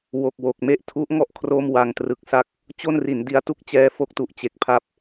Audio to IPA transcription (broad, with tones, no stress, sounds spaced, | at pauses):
w o˨˩ k̚ w o˨˩ k̚ m e˥˩ ʔ tʰ u˦˥ ʔ ŋ ɔ˥˩ ʔ kʰ r o˥˩ m w a˧ ŋ t r ɯ˨˩ k̚ s a˦˥ k̚ | t͡ɕ o˥˩ n r i˩˦ n d i˦˥ a̯ t u˥˩ k̚ t͡ɕ ɛː˦˥ f o˦˥ k̚ t u˨˩ ʔ t͡ɕ e˨˩ k̚ pʰ a˦˥ p̚